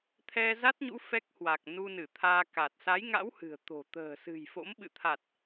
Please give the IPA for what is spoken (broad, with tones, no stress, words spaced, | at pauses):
t̪ʰɛ˧za˦˥t̚ɲṵ˧˥ fɛ˦˥k̚hwa˨˩k̚ nu˧nɨ˧˩t̪ʰaː˧ka˨˩t̚ sa˨˦jŋa̰˧˥w hɨ̤˨˩ə̯t̪o̤˨˩ t̪ə̤ː˨˩sɨ̤˨˩jfo̰˧˥mɓɨ̰˧˨ t̪ʰa˨˩t̚